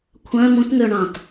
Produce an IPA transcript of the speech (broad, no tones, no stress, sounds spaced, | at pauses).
kʷʰ œ̃ m ũ t ŋ ø ɳ ɑ̃ t